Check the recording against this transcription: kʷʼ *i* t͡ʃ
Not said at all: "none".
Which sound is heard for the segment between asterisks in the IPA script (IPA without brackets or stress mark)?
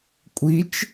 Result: i